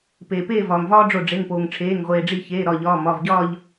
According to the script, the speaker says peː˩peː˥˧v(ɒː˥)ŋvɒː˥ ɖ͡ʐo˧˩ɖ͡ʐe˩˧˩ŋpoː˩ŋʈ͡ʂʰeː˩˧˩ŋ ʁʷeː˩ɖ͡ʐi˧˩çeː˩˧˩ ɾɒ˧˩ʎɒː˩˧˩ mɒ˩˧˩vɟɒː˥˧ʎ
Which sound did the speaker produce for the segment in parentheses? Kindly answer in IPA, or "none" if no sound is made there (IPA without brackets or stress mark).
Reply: ɒː˩